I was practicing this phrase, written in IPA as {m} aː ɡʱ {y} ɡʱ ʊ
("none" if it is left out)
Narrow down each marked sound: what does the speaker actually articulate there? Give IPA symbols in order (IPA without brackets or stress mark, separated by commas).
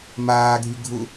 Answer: m, y